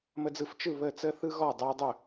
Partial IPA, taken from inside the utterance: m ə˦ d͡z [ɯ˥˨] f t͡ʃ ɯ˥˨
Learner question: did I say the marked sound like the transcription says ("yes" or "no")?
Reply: yes